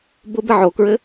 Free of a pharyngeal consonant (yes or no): no